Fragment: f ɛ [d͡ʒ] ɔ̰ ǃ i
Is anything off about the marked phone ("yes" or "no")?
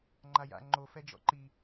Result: no